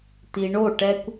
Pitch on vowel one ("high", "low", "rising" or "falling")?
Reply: low